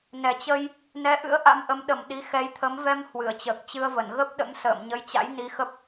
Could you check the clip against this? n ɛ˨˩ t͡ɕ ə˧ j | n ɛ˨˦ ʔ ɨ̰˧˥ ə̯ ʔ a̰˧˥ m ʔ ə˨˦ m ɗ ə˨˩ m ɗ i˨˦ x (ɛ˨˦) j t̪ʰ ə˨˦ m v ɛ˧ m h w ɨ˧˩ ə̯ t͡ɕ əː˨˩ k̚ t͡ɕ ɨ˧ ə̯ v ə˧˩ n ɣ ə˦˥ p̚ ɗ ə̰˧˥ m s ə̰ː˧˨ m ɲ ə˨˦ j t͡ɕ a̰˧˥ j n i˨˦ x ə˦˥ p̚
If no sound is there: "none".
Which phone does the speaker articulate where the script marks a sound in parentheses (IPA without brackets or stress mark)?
ɛ˨˦